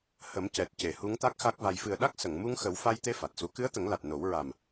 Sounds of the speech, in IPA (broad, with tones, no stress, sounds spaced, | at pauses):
h ə˨˩˦ m c ɛ˨˩ t̚ c e˨˩˨ h u˧˥ ŋ t̪ a˦˥ k̚ x a˦˥ k̚ v a˧ j f ɨ˨˩ ə̯ ɗ a˦˥ k̚ s ə˨˩˨ ŋ m u˧ ŋ x ə˨˩˦ w f a˧ j t̪ e˧ f a˨˩ t̚ s u˧˥ k ɨ˧˥ ə̯ t̪ ə˨˩˦ ŋ l a˨˩ t̚ n o˨˩˦ w ɹ a˨˩ m